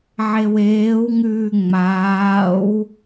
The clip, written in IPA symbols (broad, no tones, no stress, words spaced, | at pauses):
ʕeweːwŋʉː ŋ͡maːw